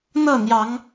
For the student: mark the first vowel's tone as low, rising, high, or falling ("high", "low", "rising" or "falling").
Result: falling